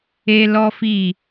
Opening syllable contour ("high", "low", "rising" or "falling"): high